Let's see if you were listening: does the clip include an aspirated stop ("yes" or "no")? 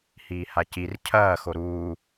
yes